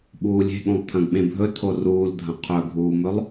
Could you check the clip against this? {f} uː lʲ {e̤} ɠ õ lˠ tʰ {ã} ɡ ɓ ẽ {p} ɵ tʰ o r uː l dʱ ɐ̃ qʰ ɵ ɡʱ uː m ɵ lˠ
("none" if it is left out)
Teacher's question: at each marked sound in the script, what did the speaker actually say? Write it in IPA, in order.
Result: ɓ, e̤, ɐ̃, bʱ

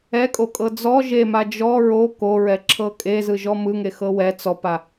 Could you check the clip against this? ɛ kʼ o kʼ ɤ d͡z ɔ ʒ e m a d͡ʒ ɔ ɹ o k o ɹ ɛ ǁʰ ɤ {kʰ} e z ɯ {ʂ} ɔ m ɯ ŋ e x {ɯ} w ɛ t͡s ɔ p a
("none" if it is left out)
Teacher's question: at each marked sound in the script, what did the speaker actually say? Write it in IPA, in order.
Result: kʼ, ʒ, ɤ

